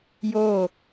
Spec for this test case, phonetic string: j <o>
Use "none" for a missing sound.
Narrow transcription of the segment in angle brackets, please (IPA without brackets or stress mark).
o